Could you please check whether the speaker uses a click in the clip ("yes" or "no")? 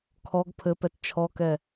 no